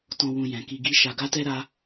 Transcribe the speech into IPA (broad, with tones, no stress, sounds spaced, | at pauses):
t ɔ̃˧ w ũ˧ j ɛ̃˨ k i˧ ɡ i˦ ʃ a˧ ɡ a˦ t ɛ˦ ɾ a˦